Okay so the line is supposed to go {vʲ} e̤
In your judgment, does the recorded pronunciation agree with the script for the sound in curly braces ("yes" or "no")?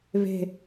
no